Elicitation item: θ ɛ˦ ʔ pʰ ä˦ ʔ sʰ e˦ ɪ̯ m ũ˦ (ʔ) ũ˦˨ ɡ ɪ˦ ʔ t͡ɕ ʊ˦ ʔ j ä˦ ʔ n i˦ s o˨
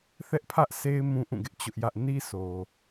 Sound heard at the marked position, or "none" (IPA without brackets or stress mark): ʔ